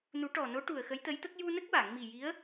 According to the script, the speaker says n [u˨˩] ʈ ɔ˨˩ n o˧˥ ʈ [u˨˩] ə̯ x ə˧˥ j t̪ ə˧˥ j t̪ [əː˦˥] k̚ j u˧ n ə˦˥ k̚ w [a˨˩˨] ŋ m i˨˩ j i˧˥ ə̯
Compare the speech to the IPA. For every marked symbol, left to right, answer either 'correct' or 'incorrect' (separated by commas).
incorrect, correct, incorrect, correct